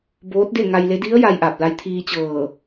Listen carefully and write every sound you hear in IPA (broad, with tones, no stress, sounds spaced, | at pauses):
b oː˧˥ t̚ d e˥˨ ŋ a˧ j l e˧˥ d i˧˥ ə̯ j a˧ j ʔ a˧˩ p̚ l a˧ j t̪ʰ iː˧ t͡ɕ ɤː˧˩